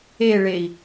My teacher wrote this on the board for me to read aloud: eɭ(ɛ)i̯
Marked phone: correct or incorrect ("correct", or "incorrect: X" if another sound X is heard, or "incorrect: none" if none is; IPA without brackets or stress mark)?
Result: incorrect: e